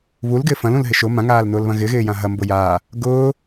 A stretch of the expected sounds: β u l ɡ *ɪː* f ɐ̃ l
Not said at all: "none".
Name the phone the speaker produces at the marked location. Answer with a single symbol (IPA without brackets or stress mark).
ɪː